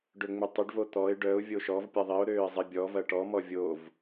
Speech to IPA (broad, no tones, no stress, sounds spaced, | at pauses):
ɖ ø ŋ͡m ʏ tˤ ʏ ɖ v o t̪ ɔ ɪ̯ ɖ œ ʊ̯ vʲ o ʃ ɔ v pʲ ɛ ðˤ i ʊ̯ ɾ øː ɪ̯ zˤ i bʲ ɔ v ɐ ʈ ɔ m ɔ vʲ o v